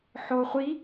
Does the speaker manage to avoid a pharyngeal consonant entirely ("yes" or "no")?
no